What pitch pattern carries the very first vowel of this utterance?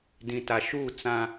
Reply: low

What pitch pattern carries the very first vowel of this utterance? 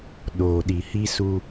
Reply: low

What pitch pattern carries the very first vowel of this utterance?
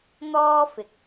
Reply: high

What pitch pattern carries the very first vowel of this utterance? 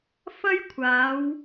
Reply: high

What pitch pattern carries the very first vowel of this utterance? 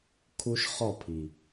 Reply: high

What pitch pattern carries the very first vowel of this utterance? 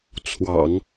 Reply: low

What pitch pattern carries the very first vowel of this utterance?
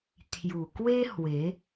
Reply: low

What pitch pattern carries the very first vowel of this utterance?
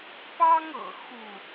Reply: high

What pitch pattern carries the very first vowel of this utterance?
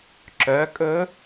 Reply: rising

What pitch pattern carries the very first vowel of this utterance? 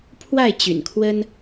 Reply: falling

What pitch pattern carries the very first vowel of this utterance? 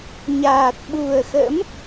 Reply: low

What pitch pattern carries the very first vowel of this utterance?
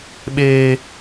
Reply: high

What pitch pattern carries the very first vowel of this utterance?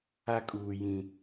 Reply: high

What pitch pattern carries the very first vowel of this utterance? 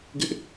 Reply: high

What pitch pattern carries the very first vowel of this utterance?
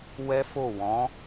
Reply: high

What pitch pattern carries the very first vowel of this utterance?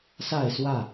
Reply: falling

